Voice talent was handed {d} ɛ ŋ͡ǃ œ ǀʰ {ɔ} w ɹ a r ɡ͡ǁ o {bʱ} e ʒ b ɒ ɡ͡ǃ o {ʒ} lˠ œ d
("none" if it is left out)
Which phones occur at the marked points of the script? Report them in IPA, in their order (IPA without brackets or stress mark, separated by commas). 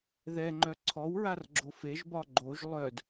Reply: ð, ɔ, f, ʒ